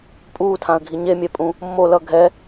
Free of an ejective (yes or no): no